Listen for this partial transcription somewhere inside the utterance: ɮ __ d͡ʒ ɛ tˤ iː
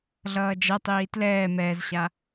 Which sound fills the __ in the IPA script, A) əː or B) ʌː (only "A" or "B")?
B